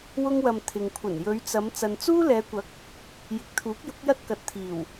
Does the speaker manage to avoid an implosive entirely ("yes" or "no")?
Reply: yes